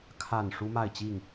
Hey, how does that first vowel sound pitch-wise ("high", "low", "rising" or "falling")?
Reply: falling